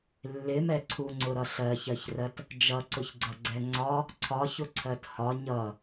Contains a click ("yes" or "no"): yes